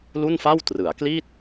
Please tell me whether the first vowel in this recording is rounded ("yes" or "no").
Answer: yes